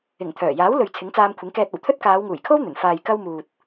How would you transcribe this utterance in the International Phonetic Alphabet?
ɪ˨˩ŋ t̪ʰœː˨˩jaː˨˥wlɵ˨ɥ t͡sʰɪ˨˥ŋt͡saː˧mkʷʰɪ˨˥ŋ kɛː˧t̚ɐ˨˩wt̪ʰɵ˥t̚ kaː˨˧wŋuː˨˩jkʰo˥w n̪ɵ˨˩n faː˨jkɐ˧wmuː˨t̚

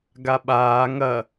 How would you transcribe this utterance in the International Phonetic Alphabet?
ɡaɓaː ŋɐ

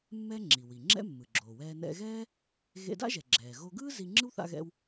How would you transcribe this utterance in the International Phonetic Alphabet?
mːɛ˥ ŋ͡ǁi˩wi˩ ŋ͡ǁɛ̰˥mːɯ˩ɡ͡ǁoː˩wɛː˧ nɛ̰˧ɣɛː˥ | ɣḛ˧da̰˥ʒɛ˩ ɡ͡ǁɛː˩ɣo˧ɡɯː˥ zi˧ŋ͡ǁɯ˥wθa̰˧ɣɛ̰˧w

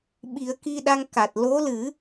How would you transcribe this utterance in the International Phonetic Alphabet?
ɓi˨˩˦ə̯ki˧ɗa˧ŋ ka˨˩t̚ lo˧˥lɨ˨˩˦

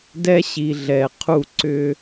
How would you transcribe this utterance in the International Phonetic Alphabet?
dɛ˦ ɕi˨ ɮɛ˨qʰu˦˨ ǀʏ˦

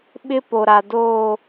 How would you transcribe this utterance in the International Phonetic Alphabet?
ɓɪ˦ po˨ɾa˨ doː˦˨

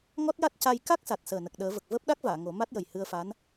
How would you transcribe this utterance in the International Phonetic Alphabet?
ŋɔ˦˥t̚ja˦˥t̚ca˧j ka˦˥k̚sa˨˩t̚səː˨˩ nə˨˩k̚ɗəː˨˩˦və˨˩k̚ vəː˦˥p̚ɗa˦˥k̚vaː˨˩˨ ŋo˨˩˦ ma˦˥t̚jə˨˩j hɨ˧ə̯fa˧˥n

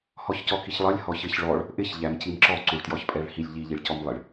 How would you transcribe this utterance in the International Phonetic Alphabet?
hɔçcɔkiçlˠʌlʲ hɔçɪç ɭɔɭ | ʔɪç ʎæmcimǁɔ ǀuɭtjɔçpʼɛɭhilʲ ʎi ʎiɭcɔmlˠɪɭ

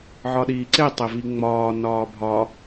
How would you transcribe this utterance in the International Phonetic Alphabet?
ʕɒɗiːǀetˤe viŋ͡mɒː nɒːbʱɒ

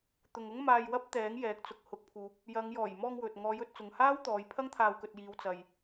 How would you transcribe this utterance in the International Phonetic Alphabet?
t̪ʊ˨ŋʊ˥ŋmaː˧jwɐ˥p̚ t̪ɛː˨˥ŋjɛː˨˥k̚ t͡sʊ˨k̚hʊ˨˥k̚pʰuː˨˥p̚ | jɐ˨˧ŋ jɔː˨˩jmɔː˧ŋ wɵ˨t̚ ŋɔː˨˧jɵ˧t̚t͡sʊ˨ŋhaː˥w t̪ɔː˨˧jpʰɐ˥ŋ t̪ʰaː˧wkɵ˧t̚ jiː˨˧w t͡sɐ˨j

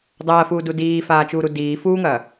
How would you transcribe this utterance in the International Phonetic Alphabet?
dˤɐːfuːdu diːfaːt͡ʃuːɾu diː fuːŋɐː

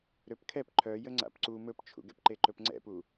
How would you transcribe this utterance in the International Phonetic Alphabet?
ɾøpkʰɛp ǃʰœ jəŋ͡ǀa̰pǀu mɵpt͡ʃʰṵɡɛ̰pǃe ǃɵpŋ͡ǀɛ̰pu

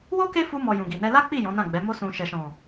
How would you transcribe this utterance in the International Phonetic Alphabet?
wo˦ ke˦fu˧mɔ˨ jũ˨ɡi˨nɛ˧ la˦k͡pi˦˨ jɔ̃˨˦nã˦˨ɡ͡bɛ˨˦ mo˧sũ˨ ʃɛ˨ʃɔ̃˨

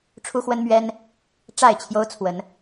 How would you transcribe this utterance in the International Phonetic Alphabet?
ʈ͡ʂʰu˦xwə˦nmɥɛ˦n | ʈ͡ʂa˥˨ɪ̯t͡ɕʰjo˦ʊ̯t͡sʰwə˨˦n

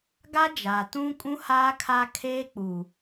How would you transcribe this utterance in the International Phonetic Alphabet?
ɡa˦d͡ʒaː˨ tũ˦kʼũ˦haː˦ kʰa˦kʰeː˦k͡puː˨

